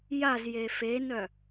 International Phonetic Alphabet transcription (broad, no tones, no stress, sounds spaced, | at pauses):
j a z j e f e n œ